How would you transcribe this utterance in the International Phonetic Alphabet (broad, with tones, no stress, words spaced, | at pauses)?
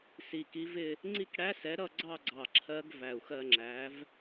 si˨˩ki˨˥vɪ˥˧ | ŋ͡ǀi˥˧kɽæ˦˥sɛ˨˥ ɾʌ˥˧ɡ͡ǀɑ˥˧ɡ͡ǀɑ˨˩ ǁʰɜ˦˥ɡ væ˨˩u̯xɜ˧ŋ͡ǁæ˨˥v